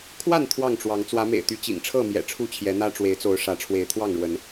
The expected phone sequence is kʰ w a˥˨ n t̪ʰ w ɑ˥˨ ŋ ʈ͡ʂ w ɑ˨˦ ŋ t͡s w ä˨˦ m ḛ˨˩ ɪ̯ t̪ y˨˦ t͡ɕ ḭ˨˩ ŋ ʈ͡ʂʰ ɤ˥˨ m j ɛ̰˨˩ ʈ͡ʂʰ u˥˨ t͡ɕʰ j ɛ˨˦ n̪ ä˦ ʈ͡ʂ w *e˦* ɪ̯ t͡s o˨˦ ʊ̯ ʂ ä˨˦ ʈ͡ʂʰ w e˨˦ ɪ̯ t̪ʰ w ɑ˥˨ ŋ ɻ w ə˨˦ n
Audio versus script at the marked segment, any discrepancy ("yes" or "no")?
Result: yes